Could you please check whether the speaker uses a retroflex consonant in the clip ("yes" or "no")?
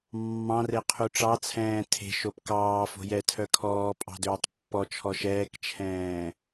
yes